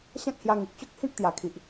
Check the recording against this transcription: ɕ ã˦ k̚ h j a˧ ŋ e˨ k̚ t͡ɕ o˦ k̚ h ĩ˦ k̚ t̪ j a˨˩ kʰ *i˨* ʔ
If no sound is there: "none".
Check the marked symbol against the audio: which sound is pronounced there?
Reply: i˨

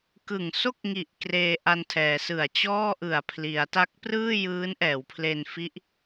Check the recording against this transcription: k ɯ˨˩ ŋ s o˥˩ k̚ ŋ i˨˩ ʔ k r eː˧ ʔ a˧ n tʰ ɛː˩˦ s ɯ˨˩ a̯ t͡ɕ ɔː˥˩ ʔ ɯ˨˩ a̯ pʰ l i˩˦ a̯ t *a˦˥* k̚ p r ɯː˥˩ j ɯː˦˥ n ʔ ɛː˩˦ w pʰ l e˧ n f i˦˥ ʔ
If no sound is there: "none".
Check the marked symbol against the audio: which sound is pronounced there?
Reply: a˦˥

